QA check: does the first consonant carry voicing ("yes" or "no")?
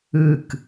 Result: no